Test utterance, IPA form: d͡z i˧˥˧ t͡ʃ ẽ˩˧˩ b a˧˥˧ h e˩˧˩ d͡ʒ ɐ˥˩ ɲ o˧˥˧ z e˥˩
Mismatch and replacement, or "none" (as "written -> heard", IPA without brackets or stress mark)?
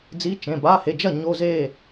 none